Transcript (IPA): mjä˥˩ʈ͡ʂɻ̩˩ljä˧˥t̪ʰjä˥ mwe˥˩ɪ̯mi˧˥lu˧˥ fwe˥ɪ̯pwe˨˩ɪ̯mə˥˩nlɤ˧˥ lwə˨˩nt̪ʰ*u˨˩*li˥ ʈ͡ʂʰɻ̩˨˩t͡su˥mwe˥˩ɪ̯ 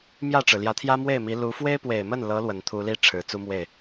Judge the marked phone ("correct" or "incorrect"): incorrect